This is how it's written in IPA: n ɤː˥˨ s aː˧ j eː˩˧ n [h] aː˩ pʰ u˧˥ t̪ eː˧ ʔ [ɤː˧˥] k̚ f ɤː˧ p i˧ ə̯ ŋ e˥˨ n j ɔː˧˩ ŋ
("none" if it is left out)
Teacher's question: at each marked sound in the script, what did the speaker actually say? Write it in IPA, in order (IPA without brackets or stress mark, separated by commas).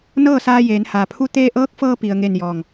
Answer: h, ɤː˧˥